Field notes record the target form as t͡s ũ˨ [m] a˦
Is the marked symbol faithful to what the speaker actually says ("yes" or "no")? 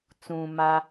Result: yes